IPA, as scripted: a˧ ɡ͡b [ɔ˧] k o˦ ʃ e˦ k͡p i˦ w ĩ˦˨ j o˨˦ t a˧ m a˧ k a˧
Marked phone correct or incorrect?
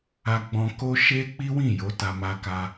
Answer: incorrect